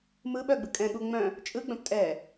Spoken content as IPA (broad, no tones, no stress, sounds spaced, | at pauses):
m ɯ ɓ œ ɡ͡b ɯ kʼ ɛ̃ ɠ u ŋ͡m œ̃ | t͡ʃʼ ɯ ɡ͡b œ̃ p tʼ ɛ